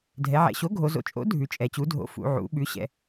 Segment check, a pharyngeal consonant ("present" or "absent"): present